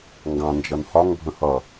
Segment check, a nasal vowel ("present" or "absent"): present